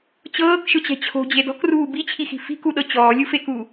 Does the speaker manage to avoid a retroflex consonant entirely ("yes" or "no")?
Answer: yes